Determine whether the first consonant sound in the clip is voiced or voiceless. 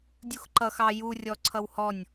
voiced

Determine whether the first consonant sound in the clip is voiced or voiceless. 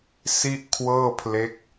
voiceless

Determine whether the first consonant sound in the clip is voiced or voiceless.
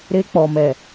voiced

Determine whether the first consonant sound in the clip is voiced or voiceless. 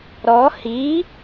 voiced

